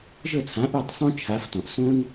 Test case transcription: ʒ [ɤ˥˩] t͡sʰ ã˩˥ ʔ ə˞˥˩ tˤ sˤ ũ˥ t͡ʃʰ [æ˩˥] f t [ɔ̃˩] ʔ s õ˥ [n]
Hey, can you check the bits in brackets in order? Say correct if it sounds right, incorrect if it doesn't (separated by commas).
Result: correct, incorrect, correct, correct